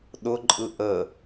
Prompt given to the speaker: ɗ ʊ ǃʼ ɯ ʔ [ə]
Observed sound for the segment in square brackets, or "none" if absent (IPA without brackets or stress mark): ə